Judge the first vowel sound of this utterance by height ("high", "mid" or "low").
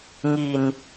high